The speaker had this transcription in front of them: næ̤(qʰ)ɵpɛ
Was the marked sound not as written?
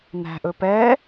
yes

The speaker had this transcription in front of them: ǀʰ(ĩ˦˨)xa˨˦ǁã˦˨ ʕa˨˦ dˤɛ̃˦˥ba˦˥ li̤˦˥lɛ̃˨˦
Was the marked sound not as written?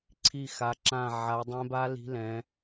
yes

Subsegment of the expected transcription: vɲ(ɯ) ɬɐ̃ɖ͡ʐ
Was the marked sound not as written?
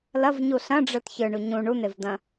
yes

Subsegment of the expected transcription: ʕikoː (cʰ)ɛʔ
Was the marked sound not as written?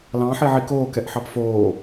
yes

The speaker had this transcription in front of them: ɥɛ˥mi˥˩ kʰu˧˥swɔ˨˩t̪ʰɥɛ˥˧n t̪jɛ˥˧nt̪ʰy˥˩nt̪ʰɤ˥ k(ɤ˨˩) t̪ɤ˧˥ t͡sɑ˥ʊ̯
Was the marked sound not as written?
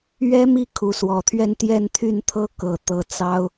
no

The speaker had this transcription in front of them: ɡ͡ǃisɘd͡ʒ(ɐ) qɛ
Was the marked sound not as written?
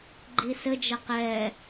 no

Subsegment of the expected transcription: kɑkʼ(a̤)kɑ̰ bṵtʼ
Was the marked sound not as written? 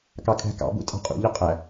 yes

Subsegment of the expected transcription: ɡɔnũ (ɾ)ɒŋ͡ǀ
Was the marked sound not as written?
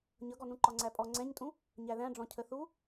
yes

